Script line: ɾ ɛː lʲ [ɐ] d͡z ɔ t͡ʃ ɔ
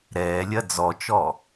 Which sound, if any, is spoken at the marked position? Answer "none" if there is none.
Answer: ɐ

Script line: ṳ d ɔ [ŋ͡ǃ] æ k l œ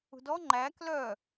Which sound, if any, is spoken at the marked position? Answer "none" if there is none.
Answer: ŋ͡ǃ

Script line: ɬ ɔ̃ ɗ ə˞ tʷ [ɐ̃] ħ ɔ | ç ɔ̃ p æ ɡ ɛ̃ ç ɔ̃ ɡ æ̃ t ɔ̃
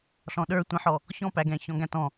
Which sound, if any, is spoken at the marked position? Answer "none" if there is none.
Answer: ə̃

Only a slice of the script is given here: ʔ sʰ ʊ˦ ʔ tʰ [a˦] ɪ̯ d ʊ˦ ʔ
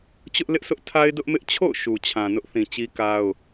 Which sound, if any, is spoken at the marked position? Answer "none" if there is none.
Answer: a˦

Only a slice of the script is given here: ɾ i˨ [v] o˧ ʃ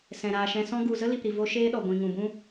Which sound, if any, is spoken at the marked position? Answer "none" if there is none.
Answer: v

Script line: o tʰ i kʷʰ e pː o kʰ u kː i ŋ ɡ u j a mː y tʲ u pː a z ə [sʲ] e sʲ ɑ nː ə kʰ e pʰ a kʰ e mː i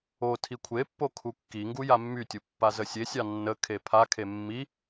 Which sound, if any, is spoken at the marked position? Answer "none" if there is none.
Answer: sʲ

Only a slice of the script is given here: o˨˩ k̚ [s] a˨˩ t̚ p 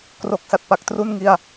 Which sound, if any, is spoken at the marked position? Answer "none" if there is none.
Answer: s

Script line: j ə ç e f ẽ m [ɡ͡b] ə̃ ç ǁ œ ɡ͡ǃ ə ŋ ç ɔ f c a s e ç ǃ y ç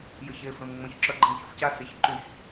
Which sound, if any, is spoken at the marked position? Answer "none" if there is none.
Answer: ŋ͡m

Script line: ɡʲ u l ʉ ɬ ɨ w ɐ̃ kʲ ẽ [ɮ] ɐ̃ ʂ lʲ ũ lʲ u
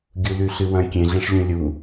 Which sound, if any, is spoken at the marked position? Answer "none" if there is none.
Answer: ɮ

